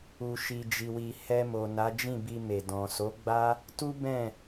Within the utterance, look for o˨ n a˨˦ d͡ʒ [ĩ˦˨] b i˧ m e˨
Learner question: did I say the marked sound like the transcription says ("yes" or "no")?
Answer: yes